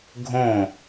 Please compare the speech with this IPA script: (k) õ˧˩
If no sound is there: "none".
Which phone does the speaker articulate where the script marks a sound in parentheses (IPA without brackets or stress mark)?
ɡʱ